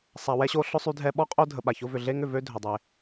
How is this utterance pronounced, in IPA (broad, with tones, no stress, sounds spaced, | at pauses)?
sˤ a˨ w ɛ˥ ɕ o˦ ɬ ʊ˥ sˤ y˦ dʱ ɛ˦ ɓ ɔ˥ qʼ o˦ dʱ ə˨ ɓ a˩ ç ʊ˦ v ʏ˨ ɮ e˥ ŋ ʏ˨ v ø˥ dʱ ʏ˩ dˤ e˩